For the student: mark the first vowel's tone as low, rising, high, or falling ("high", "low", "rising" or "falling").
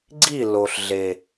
falling